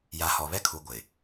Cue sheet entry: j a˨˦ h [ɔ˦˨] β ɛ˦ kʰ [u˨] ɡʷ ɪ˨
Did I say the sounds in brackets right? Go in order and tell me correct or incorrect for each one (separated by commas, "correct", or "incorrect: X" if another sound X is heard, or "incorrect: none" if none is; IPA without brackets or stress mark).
incorrect: ɔ˨, correct